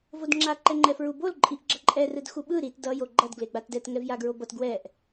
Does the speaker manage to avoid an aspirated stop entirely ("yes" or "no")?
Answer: yes